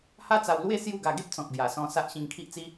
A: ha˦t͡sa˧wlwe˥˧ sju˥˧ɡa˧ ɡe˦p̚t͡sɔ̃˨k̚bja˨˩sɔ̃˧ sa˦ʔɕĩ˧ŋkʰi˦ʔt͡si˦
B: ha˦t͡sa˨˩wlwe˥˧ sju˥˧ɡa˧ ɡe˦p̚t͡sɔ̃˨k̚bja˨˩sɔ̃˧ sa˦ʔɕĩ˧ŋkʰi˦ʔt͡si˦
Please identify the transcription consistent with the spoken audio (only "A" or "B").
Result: A